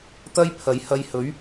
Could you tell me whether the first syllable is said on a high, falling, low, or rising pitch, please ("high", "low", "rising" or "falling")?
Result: high